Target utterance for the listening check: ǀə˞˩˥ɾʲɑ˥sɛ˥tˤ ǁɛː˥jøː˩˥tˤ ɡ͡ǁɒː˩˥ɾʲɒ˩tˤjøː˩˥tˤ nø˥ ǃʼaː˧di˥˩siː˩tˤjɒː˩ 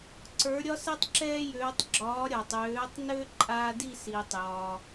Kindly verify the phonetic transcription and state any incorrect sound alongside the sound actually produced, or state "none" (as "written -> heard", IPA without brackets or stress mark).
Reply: ɑ˥ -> ɒ˥